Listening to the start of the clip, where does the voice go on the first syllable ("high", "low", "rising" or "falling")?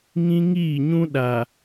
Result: high